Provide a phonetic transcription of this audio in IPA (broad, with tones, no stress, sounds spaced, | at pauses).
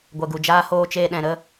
ɡʷ ɛ˨ ɡ u˨ d͡ʒ aː˦ h oː˦ t͡ʃ eː˧ ɗ ɛ̃˨ ɾ ə˦˨